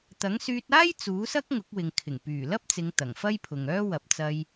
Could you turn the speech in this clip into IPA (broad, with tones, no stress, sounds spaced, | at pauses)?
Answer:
t̪ ɐ˨˥ ŋ s yː˧ t̚ aː˥ j t͡s uː˨˥ s ɐ˥ k̚ ŋ ʊ˨˥ k̚ w ɪ˨ ŋ kʰ ɪ˨˩ ŋ p yː˨˩ l ɐ˥ p̚ t͡s ɪ˨˧ ŋ t̪ ɐ˨˩ ŋ f ɐ˥ j pʰ ʊ˨ ŋ œː˥ w ɐ˨ p̚ t͡s ɐ˧ j